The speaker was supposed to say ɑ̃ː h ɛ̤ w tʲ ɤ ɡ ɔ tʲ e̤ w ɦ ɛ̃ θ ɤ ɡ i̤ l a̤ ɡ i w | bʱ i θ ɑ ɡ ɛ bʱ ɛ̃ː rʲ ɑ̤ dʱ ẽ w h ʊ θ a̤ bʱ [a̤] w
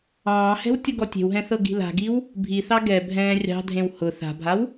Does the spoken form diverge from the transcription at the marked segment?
yes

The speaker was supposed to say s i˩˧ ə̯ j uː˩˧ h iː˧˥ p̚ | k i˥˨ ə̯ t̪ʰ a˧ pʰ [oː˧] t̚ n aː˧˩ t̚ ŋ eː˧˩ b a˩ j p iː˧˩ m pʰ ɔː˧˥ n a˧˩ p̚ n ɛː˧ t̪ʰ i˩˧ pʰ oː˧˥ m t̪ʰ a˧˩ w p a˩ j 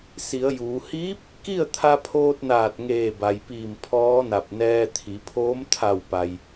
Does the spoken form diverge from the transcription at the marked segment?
no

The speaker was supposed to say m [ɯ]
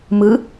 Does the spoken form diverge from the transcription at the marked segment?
no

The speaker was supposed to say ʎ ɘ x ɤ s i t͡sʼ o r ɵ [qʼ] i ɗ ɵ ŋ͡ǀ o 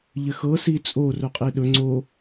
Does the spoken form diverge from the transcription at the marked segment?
no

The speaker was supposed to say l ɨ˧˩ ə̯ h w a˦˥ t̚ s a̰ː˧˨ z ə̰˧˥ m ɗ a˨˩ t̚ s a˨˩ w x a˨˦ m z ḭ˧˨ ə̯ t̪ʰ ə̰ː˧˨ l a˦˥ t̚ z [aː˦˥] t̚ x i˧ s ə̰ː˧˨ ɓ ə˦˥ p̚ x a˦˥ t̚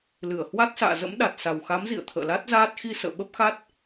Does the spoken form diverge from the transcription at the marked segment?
no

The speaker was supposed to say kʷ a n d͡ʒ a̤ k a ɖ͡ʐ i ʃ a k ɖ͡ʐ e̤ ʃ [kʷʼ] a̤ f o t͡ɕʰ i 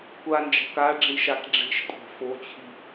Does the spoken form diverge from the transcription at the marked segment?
no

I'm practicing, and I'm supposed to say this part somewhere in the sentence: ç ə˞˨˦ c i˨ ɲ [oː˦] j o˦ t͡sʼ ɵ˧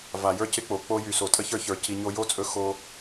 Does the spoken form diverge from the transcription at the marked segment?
yes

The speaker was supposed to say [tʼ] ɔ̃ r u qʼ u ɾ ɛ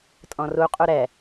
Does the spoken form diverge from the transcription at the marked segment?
no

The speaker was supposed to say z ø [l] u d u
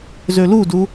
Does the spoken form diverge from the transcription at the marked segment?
no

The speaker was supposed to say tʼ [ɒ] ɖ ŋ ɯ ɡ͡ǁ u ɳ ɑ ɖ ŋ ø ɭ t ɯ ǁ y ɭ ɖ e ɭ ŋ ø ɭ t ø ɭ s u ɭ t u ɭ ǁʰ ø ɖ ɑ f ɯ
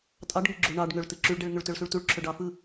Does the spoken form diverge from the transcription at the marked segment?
yes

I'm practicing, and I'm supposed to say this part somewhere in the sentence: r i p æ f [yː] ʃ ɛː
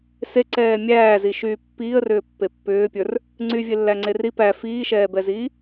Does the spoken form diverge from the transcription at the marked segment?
yes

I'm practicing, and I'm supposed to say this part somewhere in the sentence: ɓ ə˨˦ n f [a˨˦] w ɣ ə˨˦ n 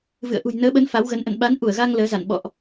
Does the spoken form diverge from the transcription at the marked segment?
no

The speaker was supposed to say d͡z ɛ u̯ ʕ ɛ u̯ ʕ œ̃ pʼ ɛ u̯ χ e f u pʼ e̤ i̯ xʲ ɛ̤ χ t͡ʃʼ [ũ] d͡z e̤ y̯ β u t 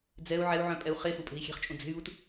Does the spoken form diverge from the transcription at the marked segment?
no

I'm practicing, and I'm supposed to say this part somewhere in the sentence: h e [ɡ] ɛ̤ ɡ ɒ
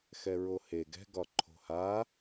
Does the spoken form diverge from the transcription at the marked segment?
no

